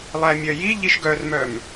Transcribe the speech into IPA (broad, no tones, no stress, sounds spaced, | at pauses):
lˠ æ mʲ œ j i ʎ i ʃ ɡ œ r m œ m